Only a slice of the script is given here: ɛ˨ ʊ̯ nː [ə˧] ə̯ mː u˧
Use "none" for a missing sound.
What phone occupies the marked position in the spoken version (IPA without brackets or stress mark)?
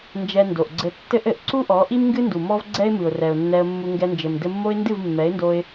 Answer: ɛ˧